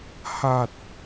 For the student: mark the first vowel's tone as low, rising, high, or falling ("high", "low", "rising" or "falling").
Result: low